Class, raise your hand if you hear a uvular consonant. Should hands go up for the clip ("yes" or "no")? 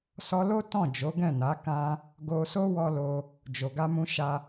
no